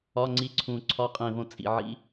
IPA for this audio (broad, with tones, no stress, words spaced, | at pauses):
ɒ˧˥˧ ŋ͡ǀi˧˥˧ǀʰũ˧˩ǀʰɒ˧˥˧ qʼẽ˧˩võ˧˩ t͡sʼḭ˧˩ʕḭ˧˥˧